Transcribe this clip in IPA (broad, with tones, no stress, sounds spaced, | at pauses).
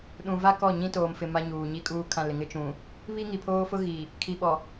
ɗ ũ˨ v a˦ k ɔ˦˨ ɲ ĩ˦ t oː˨ m f ɪ˨ m a˦ ɲ uː˨ ɲ i˦ kʼ uː˦ kʰ ã˦˨ l ɪ˨ ŋ ɪ˦ t͡ʃ ũ˨ | β i˦ ŋ i˨ pʰ oː˦ f ʊ˦ ɣ i˨ | kʰ i˨ ɓ ɔ˨